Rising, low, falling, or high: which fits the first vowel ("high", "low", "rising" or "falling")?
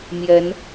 rising